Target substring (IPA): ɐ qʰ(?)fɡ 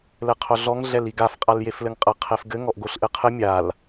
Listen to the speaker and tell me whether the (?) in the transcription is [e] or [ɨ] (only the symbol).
e